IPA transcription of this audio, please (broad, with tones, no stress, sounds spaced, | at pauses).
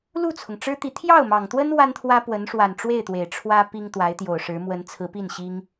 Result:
l u˥˩ t͡sʰ ʊ˩ ŋ ʈ͡ʂ ɻ̩˥ t̪ i˧˥ t̪ʰ j ɑ˥˩ ʊ̯ m ɑ˨˩ ŋ t̪ w ə˥ n w a˥ n t̪ʰ w ä˥ p w ə˧˥ n ʂ w a˨˩ n ʈ͡ʂ w e˥˩ ɪ̯ t̪ w e˨˩ ɪ̯ ʈ͡ʂʰ w ä˥ p i˥ ŋ t̪ w a˧˥ ɪ̯ t̪ j o˨˩ ʊ̯ ʂ ɻ̩˧˥ m w ə˧˥ n t͡sʰ ɹ̩˧˥ p i˥˩ n ɕ i˥ ŋ